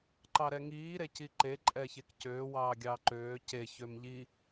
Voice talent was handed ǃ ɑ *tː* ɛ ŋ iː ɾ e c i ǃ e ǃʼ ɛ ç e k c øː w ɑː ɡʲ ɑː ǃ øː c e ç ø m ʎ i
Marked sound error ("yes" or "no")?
yes